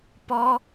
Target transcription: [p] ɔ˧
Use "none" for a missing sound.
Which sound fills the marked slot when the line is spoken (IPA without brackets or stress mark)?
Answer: p